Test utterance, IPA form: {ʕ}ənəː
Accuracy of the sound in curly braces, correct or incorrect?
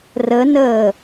incorrect